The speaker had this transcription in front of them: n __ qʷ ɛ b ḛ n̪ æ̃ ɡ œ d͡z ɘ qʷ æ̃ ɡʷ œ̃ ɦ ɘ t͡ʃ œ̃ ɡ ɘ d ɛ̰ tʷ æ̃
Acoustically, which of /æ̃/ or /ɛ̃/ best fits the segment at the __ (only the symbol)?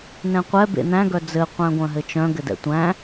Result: ɛ̃